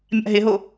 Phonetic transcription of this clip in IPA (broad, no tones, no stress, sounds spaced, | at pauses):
mʲ a̰ ɦ ɪ ɦ o